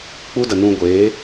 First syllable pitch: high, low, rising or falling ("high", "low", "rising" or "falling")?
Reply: high